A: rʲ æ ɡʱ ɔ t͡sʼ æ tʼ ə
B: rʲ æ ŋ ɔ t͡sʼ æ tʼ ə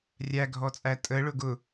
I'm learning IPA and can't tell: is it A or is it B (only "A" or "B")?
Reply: A